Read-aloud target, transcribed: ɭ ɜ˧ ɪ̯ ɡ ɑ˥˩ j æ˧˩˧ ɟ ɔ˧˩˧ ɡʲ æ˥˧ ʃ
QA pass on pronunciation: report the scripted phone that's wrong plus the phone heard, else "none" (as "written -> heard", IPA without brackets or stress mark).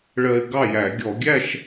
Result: ɟ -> ɡʲ